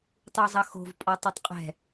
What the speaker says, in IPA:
tˤ u zˤ ʌ x o̤ v pʼ ɔ tˤ u tˤ qʼ ɛ̤

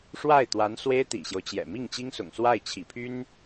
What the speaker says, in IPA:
ʂ w a˥˩ ɪ̯ t̪ w a˧˥ n s w e˥ ɪ̯ t̪ ḭ˨˩ ɕ j o˦ ʊ̯ t͡ɕ j ɛ̰˨˩ m i˥˩ ŋ t͡ɕ i˥ ŋ s ʊ̰˨˩ ŋ s w a˥˩ ɪ̯ t͡ɕʰ ḭ˨˩ pʰ y˥ n

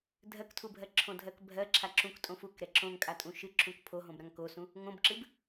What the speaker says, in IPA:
dʱ ɜ k tʰ u bʱ ɜ ǁʰ õ dʱ ɜ k bʱ ɜ ǁʰ a ǁ ũ k tʼ õ f u k ɾ ɛ ǁ õ ŋ kʼ a tʼ ũ ʃ ɨ ǁ ũ k pʰ o ɦ õ b ɾ ã ŋ k o s ũ | ŋ õ b ǁ ɨ b

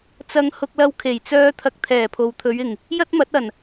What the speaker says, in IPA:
t͡s ɐ˧ ŋ h ʊ˧ k̚ l ɐ˧ w kʰ e˨˩ j t͡s œː˥ t̪ʰ ɐ˧ k̚ t̪ʰ ɛː˨˩ pʰ o˨ w t̪ʰ ɵ˨˧ ɥ ɪ˨˩ ŋ | j ɐ˥ t̚ m ɐ˨˥ t̚ ɐ˨˩ n

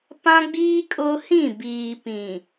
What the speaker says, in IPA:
p ã˦ ɡ͡b iː˦ kʼ ʊ˦ h ĩ˦˨ b iː˨ p ĩ˨

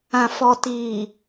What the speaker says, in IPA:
ã˨ f ɔ˨ t iː˨

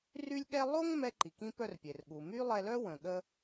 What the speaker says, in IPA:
r y˥ lʲ ɠ ɛ˥ lˠ o˥ ŋ m ɛ˧ ǃ i˩ k ĩ˧ p œ˧ r pʲ e˩ r ɠ u˩ m y˥ lˠ ɛ˧ l œ˥ w ə̃˩ ɠ ə˥

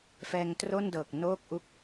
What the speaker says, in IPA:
f ɛː˧ ŋ t r o˥˩ n d ɤː˨˩ k̚ n oː˥˩ k̚ ʔ u˥˩ k̚

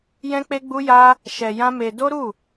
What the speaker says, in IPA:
j ɛ̃˦ k͡p e˦ ɡ͡b u˦ j a˦ | ʃ ɛ˧ j ã˦ m e˧ d o˦ ɾ u˦˨

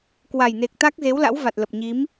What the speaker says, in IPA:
k w a˨˩ j n e˨˩ k̚ t̪ a˦˥ k̚ z e˨˦ w l a̰˧˥ w v a˨˩ t̚ l ə˨˩ p̚ ɲ i˨˦ m

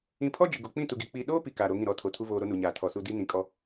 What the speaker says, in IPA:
ĩ˨ pʰ ɔ˦ d͡ʒ ɪ˨ ɡ o˨ k͡p ĩ˦˨ t u˨ ɡ i˨ k͡p i˨ ɗ oː˦ p i˨ k aː˨ ɾ o˨˦ ŋ ĩ˦˨ ɾ ɔ˦˨ tʰ o˨ tʰ u˦ v oː˨ ɾ o˦ n u˨ ɲ aː˨ tʰ ɔ˨ s u˨ d i˦ n ĩ˨ kʼ ɔ˦

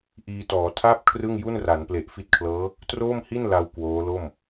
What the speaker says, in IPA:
ʔ iː˧ t ɔː˩˦ tʰ a˥˩ p̚ kʰ r ɯ˥˩ ŋ j u˥˩ n r a˩˦ n p l e˨˩ ʔ f i˦˥ t̚ kʰ l ɤː˦˥ | t r oː˥˩ m h i˥˩ n l a˧ w k w oː˦˥ l o˥˩ m

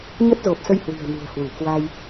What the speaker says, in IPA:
ɲ ə˦˥ t̚ z o˨˩ p̚ s ə˧ j h w i̤˨˩ ə̯ n ṳ˨˩ ə̯ h w u˧˩ k w a˧ j

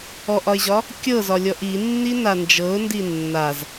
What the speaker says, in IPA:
ɔ ʔ ɒ ɪ̯ ʑ ɒ | kʲ ɤ z ɒ lʲ ɔ ʔ i nː i n a n d͡ʒ ɤ ʊ̯ n d i nː a z

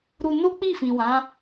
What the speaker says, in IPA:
ɾ u˧ n o˦ k͡p i˦˨ f ĩ˨ w ã˨˦

